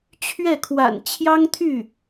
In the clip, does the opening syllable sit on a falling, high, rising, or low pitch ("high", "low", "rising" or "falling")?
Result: falling